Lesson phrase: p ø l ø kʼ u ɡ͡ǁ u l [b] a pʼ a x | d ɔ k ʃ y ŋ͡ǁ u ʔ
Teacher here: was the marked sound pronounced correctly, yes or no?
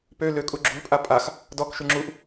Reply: no